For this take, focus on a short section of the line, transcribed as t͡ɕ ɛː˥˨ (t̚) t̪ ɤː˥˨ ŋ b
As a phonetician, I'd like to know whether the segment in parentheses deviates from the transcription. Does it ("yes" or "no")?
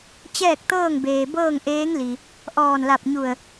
yes